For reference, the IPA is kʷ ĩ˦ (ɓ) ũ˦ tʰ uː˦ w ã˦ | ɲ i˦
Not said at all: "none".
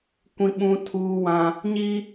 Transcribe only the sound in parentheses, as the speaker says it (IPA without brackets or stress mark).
ɓ